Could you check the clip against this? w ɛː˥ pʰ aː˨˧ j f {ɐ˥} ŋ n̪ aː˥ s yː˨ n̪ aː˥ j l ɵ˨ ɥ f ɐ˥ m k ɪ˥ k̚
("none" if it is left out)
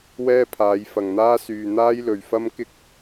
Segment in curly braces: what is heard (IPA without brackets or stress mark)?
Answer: ɐ˨